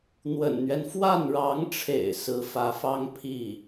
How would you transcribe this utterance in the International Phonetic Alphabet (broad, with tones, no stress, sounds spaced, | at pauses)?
n̪ w ə̰˨˩ n n̪ ɥ ɛ˦ n f w a˥˩ n ɻ ɑ˧˥ ŋ ʈ͡ʂʰ ḛ˨˩ ɪ̯ s ɹ̩˧˥ f ä˧˥ f ɑ˥ ŋ pʰ i˥˩